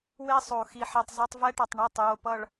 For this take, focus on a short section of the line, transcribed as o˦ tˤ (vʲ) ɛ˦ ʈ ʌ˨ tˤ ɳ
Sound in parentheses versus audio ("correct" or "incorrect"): incorrect